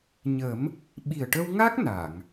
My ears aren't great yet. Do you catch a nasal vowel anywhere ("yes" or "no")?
no